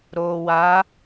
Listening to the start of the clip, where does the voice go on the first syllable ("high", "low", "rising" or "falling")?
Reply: low